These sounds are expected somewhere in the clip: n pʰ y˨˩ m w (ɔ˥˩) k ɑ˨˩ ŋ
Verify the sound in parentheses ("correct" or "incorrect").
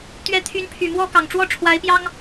correct